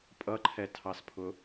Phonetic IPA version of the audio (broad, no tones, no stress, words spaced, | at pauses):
pʼʌǃʰɛtʰɑspʰʊ